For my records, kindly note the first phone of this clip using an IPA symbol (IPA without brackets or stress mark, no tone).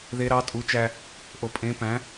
ð